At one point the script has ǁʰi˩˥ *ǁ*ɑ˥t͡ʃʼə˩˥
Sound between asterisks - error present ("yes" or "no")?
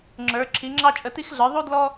yes